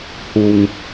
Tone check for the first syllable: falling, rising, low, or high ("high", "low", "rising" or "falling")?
low